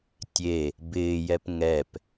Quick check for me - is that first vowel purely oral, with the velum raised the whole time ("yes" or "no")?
yes